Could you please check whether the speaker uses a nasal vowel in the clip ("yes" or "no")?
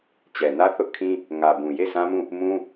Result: yes